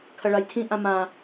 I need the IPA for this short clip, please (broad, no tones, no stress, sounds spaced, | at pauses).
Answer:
kʰ ɐ ɭ a j tʰ ĩ ʔ ã m ã